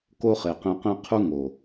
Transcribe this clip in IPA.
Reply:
k o˦ χ e˨ q ẽ˧ q ẽ˦ qʰ u˦ ŋ o˨

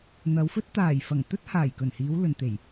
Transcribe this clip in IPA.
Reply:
n̪ ɐ˨˧ w f ɵ˥ t̚ t̪ aː˨˩ j f ɐ˨˩ ŋ t̪ ɵ˥ t̚ h aː˨˩ j k ɵ˨˩ n h iː˨˧ w l ɵ˨ n t̪ e˨˩ j

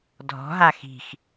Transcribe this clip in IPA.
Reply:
dʱ ɔ̤ ɦ a x i̤ x

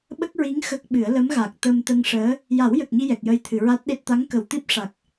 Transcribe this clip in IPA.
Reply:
ɓ ə˦˥ k̚ ɹ i˧˥ ŋ x ə˦˥ k̚ ɓ ɨ˨˩˦ ə̯ l ə˧˥ m ɣ a˨˩ k̚ t̪ ə˧ m t̪ ə˧ ŋ ʂ əː˧˥ | j a˨˩˦ w j ə˨˩ k̚ ɲ i˧ j ɛ˨˩ k̚ j ə˧ j t̪ʰ ɨ˨˩˨ ɹ a˦˥ t̚ ɗ e˦˥ t̚ t̪ a˧˥ ŋ k ə˨˩ w t̪ i˦˥ p̚ ʂ a˨˩ k̚

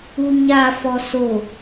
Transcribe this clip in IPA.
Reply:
u ɲ a f ɔ s o

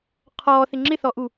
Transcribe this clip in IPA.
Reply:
qʰ ɔː θ ɪ ŋ͡ǁ ɪ θ ɔ ʔ u

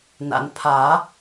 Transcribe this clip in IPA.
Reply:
n a̰˨ n pʰ a˨˩˦

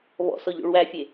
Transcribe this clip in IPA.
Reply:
β ɔ̰ s ɔ ʎ o̰ ɭ w æ fʲ e

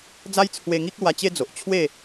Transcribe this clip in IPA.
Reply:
d͡z a˦ j t͡sʰ w e˧ ŋ i˦ k̚ l w a˧ t͡ɕ e˦ d͡z o˨ ʔ t͡ɕʰ w e˥˧

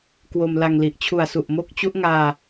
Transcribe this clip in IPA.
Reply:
k w o˧ m l a˧ ŋ l i˨˩ ʔ t͡ɕʰ u˨˩ a̯ s u˨˩ ʔ m o˦˥ k̚ t͡ɕ u˦˥ ʔ ŋ aː˧

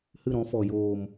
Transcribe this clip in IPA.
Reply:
h ɨ˦˨ ɾ ɔ̃˦ f ɔ˨ j oː˨ m

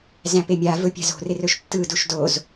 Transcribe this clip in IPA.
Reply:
z æ̃ p e mʲ a v ɵ pʲ a̤ z o̤ r ɪ r ɵ ʃ tː ɯ d u ʃ d o z

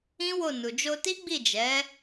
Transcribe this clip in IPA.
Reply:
ĩ˦ w o˦˨ n u˨ d͡ʒ o˧ t i˦ ɡ͡b i˦˨ d͡ʒ ɛ˨˦

